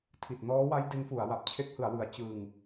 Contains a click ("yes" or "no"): no